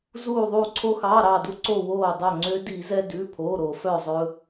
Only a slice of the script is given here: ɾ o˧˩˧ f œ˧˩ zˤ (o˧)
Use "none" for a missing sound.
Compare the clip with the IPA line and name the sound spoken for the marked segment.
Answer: ɵ˧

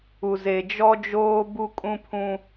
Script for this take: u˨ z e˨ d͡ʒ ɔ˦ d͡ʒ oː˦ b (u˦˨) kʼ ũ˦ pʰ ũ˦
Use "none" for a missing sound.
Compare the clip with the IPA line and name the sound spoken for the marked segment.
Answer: u˦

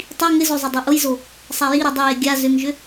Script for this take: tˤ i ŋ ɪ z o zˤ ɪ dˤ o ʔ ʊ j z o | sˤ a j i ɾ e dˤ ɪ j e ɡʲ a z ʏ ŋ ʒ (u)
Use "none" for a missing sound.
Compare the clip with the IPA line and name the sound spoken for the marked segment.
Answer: ʏ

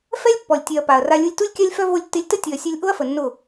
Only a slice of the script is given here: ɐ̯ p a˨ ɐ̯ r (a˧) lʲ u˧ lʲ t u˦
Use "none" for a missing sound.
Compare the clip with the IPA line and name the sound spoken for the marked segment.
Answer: a˧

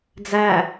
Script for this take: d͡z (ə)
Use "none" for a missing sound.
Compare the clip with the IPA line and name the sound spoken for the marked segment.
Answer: æ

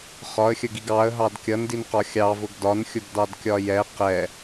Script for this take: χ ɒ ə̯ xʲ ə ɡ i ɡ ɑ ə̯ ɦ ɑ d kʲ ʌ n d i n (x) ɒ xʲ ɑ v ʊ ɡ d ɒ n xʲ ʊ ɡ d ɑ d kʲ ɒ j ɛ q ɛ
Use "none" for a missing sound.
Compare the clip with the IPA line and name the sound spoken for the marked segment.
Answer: q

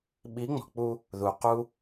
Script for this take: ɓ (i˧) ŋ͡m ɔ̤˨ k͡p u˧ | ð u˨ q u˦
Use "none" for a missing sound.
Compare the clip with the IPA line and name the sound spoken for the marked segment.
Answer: i˨˦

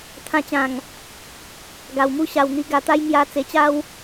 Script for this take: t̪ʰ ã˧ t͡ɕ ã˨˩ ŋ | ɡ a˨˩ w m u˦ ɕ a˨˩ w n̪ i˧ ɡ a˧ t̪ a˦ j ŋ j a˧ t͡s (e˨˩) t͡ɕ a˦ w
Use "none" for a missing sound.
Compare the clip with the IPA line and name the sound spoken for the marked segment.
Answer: e˨˩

